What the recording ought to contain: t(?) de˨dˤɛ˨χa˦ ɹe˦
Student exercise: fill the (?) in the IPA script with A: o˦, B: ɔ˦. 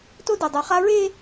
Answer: A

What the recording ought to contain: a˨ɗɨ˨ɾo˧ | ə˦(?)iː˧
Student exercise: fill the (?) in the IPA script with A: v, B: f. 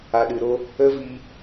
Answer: A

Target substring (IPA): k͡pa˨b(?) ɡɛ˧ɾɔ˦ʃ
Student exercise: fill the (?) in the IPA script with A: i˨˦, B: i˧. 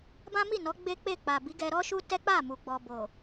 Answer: A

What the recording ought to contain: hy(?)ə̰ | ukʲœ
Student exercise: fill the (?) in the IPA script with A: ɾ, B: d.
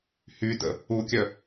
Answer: B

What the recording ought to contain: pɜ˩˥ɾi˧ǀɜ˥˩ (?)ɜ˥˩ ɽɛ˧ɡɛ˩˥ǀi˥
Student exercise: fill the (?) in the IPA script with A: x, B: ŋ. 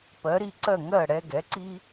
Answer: B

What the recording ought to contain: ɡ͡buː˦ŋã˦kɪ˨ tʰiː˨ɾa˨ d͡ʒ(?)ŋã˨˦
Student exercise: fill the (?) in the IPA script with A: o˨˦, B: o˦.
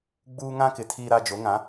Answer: A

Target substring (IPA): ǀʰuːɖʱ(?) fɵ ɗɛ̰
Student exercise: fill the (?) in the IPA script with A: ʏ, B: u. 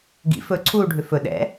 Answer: A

